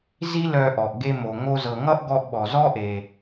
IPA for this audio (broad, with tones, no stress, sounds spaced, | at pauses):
z i˥ l œ˧ ʔ ɔ˩ ʔ ɡ e˧ m o˩ ŋ o˧ z ɤ˩ ŋ ʌ˥ ʔ ɡ ɔ˧ ʔ ɓ ɔ˩ z ɔ˥ ʔ e˩